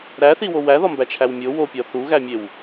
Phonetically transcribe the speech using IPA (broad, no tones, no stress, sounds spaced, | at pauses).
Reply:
ɾ æ θ i w o w æ ð ɒ m b æ t͡ʃʰ æ w mʲ o w o pʲ ɒ θ u ɣ æ mʲ e w